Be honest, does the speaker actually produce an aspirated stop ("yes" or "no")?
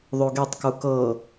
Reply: no